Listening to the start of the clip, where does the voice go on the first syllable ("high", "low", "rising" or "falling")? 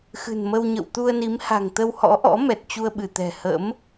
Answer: low